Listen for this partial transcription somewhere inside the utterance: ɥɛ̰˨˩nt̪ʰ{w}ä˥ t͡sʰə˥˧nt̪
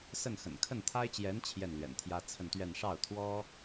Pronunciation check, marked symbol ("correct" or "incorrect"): incorrect